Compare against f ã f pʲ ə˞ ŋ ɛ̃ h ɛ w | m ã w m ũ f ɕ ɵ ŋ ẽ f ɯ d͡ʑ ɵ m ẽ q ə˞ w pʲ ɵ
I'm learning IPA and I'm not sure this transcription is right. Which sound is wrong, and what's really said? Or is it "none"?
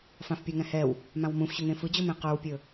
none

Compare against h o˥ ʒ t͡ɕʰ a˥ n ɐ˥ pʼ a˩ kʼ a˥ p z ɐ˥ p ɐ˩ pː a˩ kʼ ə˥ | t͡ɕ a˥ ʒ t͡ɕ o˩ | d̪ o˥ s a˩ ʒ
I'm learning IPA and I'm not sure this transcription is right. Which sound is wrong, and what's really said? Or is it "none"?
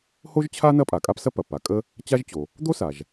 z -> s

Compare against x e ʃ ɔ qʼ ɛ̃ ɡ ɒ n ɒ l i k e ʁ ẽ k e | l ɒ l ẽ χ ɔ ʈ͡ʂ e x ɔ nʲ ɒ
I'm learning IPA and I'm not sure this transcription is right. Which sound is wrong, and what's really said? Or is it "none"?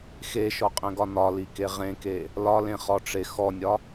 none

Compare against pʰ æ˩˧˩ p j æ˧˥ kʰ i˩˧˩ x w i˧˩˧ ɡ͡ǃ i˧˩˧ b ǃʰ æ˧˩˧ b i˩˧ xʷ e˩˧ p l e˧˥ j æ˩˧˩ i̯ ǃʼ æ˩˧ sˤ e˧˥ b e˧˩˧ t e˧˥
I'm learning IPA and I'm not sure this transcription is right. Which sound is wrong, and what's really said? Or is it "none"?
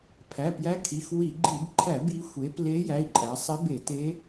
none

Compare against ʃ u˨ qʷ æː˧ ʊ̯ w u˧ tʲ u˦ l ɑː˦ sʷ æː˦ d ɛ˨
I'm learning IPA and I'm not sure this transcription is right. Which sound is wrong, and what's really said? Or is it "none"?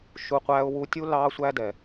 none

